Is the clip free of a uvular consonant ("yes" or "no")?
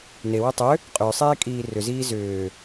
no